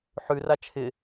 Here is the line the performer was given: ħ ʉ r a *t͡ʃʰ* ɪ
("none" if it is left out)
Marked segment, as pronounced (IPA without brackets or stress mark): t͡ʃʰ